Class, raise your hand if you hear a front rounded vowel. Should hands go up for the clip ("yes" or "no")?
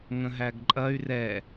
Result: yes